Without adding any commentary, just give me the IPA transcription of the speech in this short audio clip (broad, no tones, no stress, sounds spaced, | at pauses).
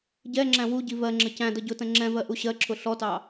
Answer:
ɟ ɛ ŋ͡ǁ æ̃ w u ɟ i v ɜ ŋ͡ǁ ə c æ̃ d ʌ ɟ ʊ t ə̃ ŋ͡ǁ ɛ̃ v ɜ ʔ u ɕ ɜ ǁʰ ʊ ɬ ɔ t ɑ